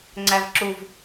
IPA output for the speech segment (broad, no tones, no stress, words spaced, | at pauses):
ŋ͡ǀævǁuv